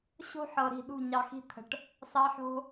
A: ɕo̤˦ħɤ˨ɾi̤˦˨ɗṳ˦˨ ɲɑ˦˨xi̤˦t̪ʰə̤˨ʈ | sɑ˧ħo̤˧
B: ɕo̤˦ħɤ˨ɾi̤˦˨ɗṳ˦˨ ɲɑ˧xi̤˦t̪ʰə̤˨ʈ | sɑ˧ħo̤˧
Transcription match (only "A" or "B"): B